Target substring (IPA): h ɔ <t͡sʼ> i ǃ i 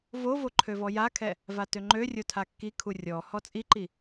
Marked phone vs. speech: correct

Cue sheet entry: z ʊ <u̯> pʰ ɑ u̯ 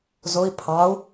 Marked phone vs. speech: incorrect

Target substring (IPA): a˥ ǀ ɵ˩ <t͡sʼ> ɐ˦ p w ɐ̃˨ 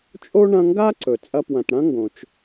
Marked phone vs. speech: correct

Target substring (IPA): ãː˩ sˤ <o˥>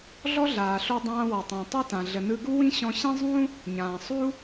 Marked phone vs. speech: incorrect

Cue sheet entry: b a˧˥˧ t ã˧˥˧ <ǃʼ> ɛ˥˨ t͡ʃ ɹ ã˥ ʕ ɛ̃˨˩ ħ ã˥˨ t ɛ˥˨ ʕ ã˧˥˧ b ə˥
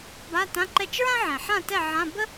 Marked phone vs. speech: incorrect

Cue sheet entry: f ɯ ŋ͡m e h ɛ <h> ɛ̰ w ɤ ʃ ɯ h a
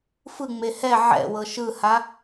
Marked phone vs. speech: incorrect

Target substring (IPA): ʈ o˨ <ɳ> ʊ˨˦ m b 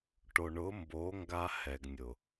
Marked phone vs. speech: correct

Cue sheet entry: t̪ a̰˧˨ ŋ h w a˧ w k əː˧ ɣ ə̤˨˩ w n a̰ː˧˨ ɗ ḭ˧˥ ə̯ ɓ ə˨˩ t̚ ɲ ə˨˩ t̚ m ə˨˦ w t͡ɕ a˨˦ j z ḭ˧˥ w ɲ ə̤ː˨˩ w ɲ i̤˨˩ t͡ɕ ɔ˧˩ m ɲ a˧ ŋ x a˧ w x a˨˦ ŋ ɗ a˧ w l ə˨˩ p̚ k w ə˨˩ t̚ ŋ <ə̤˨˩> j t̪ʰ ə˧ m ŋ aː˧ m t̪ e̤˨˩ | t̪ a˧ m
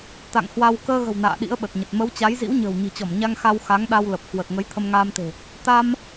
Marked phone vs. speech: incorrect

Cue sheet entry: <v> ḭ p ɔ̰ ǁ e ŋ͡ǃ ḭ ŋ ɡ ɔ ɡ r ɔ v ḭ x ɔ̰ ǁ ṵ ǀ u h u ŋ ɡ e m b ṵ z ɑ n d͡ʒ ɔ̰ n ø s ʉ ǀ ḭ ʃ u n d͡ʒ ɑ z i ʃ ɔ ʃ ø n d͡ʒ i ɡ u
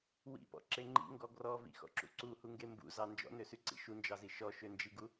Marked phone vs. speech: incorrect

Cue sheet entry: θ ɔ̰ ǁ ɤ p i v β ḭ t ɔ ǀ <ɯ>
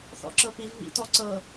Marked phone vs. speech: incorrect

